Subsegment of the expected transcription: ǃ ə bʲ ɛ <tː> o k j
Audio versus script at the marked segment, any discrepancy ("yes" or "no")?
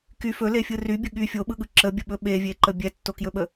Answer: no